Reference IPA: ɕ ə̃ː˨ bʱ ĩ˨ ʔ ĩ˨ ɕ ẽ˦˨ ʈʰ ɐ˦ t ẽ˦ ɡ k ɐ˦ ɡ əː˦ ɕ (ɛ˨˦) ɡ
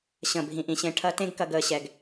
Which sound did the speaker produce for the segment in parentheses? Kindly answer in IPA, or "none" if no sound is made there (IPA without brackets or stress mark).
ɛ˦